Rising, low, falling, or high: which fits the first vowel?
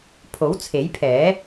rising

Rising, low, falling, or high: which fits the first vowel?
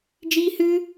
high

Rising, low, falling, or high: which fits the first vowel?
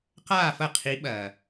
falling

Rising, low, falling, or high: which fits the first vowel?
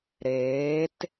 rising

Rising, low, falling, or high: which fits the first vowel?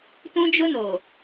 high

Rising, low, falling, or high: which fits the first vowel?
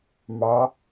rising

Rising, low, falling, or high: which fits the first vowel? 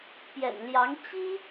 low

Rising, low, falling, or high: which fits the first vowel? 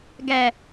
low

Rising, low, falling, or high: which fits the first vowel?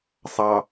low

